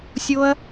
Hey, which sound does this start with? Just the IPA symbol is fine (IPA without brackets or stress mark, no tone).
sʲ